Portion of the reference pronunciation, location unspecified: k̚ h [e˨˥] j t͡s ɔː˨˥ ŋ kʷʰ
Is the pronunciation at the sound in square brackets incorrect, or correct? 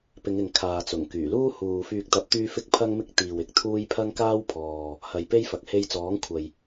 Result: incorrect